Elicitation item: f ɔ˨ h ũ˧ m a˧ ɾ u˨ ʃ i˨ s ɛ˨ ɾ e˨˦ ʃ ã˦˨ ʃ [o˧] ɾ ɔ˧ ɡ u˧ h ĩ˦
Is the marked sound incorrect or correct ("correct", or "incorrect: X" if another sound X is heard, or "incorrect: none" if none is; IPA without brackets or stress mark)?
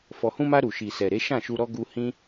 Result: incorrect: u˧